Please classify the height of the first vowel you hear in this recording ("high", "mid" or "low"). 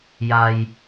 low